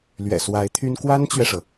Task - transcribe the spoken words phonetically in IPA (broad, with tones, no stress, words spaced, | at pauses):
lɥɛ̰˨˩swa˧˥ɪ̯t̪ʰy˥n kwa˥nt͡ɕɥɛ˨ʂɤ˩